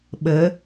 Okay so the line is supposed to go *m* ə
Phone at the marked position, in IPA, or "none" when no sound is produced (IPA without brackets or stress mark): ɓ